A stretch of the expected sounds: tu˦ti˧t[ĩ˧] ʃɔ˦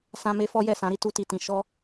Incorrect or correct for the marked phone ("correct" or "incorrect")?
correct